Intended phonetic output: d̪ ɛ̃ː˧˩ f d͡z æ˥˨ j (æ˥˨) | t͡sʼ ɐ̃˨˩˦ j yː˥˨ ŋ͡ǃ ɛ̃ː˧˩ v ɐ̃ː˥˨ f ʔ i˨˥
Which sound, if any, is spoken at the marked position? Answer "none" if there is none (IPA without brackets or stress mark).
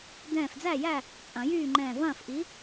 æ˥˨